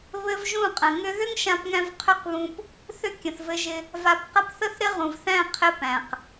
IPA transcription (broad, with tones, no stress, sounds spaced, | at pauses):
β ɘ˦ v ʒ ũ˦˨ qʼ ə̃˨ ŋ ʏ˦ ð ʏ˦ ŋ ʃ ã˧ p ŋ æ̃˧ v qʰ ʏ˦ q β ũ˧ p | θ ʏ˦ kʲ ə̃˨ θ v ɘ˧ ʒ ɪ˧ | v a˧ p q ə˦ p θ ə˦ θ ɾ ɪ˦ ʁ ũ˨ v θ æ̃˦˨ qʰ ɪ˦ p æ̃˨ q